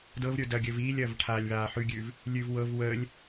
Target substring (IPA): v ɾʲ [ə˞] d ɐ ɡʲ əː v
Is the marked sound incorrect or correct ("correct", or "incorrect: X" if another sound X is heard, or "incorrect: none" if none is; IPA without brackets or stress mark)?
correct